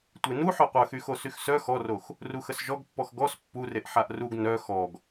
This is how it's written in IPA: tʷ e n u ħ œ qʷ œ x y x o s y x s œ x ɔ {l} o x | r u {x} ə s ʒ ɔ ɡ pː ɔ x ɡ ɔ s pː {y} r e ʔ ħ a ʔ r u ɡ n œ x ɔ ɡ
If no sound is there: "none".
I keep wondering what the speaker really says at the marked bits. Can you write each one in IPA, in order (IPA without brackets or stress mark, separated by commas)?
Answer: r, x, u